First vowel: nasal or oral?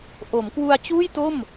oral